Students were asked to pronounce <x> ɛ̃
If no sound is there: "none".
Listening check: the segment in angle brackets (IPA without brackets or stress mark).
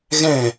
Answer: ɣ